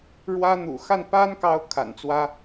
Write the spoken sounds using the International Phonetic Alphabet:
ɻwä˥ n̪ṵ˨˩xa˥˩npa˥nkɑ˧˥ʊ̯ kʰa̰˨˩nt͡swä˥

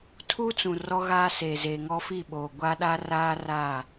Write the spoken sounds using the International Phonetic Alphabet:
tʰu˦t͡sũ˨ rɔ˦ɣaː˦seː˨zeː˨ ŋɔ˦fi˦˨ɓoː˨ ɡʷa˦ɗa˦raː˦ raː˦˨

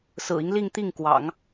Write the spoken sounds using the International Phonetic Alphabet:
sɹ̩˨˩i˦ŋ li˥˧ŋt̪i˥˩ŋ kwɑ̰˨˩˦ŋ

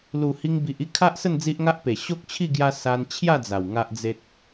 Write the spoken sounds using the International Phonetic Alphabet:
lu˨˩ hi˧ŋbi˨ʔi˦ kʰa˦ʔsə˥˧n d͡zi˦ʔŋa˦ʔpe˨˩ ɕo˦k̚t͡ɕʰi˥˧ ɡja˦ sa˧nt͡ɕʰja˥˧d͡za˨˩w ŋa˦ʔd͡ze˦t̚

